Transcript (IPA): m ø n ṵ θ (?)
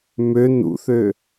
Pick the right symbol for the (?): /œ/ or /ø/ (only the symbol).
ø